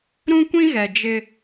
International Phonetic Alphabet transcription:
ɾũ˦kʷĩ˦ɣɛ˨ d͡ʒɪ˦

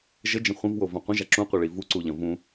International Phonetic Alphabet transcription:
ʒəd͡ʒə̃ χʷə̃vwovɐ̃ qʷə̃ʒa ǁũqʷeɭi vuǀuʎɐ̃ vũ

